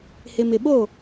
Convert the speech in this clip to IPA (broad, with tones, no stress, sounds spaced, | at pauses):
h ɪ˨ m ɪ˨ ɓ o˦˨